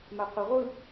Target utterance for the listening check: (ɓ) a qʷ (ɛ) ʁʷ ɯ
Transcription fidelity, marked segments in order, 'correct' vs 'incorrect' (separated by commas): incorrect, correct